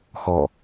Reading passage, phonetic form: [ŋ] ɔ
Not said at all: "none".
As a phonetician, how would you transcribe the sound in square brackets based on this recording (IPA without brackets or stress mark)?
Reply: x